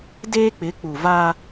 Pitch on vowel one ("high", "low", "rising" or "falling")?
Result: high